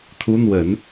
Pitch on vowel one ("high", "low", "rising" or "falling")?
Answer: rising